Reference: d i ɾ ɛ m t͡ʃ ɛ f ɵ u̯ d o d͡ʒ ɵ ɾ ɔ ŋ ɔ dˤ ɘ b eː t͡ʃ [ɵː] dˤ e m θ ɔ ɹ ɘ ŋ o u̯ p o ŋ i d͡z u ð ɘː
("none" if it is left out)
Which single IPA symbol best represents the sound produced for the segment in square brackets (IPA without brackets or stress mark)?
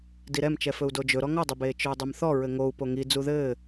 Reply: ɵː